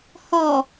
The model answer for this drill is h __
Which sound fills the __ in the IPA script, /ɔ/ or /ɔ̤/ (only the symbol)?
ɔ